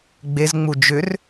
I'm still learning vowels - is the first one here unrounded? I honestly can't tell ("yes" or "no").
yes